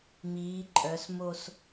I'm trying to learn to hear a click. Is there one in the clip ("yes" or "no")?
yes